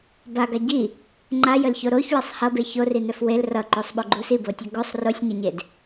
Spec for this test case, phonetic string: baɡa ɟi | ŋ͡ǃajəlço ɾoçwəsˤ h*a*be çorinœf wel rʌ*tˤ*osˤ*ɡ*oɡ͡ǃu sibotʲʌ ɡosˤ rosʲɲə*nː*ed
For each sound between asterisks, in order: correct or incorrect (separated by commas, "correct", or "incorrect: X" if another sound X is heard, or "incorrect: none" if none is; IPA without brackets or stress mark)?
incorrect: ʌ, incorrect: ǃ, incorrect: ɓ, incorrect: ɲ